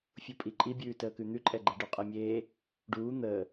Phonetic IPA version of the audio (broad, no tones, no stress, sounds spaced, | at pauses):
fʲ u pʼ i ǃʼ i bʲ ʉː t əː k ʉ n̪ ʉ ǃʼ ɛ ɡ͡ǃ ɛ ɖ ʉ qʼ e mʲ eː | ɖ uː n̪ əː